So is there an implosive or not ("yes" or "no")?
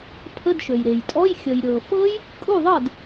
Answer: no